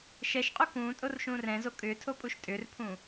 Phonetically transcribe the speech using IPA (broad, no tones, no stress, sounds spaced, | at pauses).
ʃ ɛ ʃ qʼ u k ũː tʼ o r ʃ ũː r ɛ̃ z o kʼ ʏː tʰ o pʼ u ʃ tʼ ʏ r pʰ ũ